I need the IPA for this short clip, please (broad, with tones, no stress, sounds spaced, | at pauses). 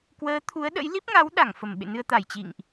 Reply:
k w əː˨˦ t̪ʰ u˨˦ ə̯ ɗ ə̰˧˥ j l i˦˥ p̚ ŋ a˨˦ w ɗ a˧˩ ŋ f ə˧˩ m ɓ ḛ˧˨ n ɨ˧ ə̯ t̪ a˧˩ j t͡ɕ ḭ˧˨ ŋ ʔ